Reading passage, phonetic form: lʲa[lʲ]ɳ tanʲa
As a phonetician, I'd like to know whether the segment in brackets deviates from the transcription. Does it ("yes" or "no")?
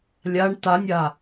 yes